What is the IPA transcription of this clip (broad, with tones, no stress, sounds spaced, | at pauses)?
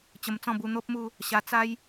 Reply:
t͡ɕ ə˧ m t͡s ɔ̃˥˧ b u˧ n̪ o˦ p̚ m u˥˧ | ɕ a˧ t͡s a˦ j